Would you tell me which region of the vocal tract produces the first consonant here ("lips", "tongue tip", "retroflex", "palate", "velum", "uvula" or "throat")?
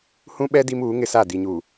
throat